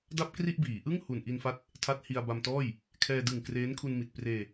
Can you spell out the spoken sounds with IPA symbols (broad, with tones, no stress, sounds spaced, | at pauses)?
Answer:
d a˥˩ p̚ k r i˥˩ ʔ b iː˩˦ ʔ ɯ˥˩ ŋ h u˨˩ n ʔ i˧ n f a˦˥ t̚ | tʰ a˦˥ t̚ h i˧ a̯ b a˧ m t ɔː˥˩ j | kʰ ɛː˧ d ɯ˨˩ ŋ k r eː˦˥ n kʰ u˧ n m i˨˩ t̚ p r eː˧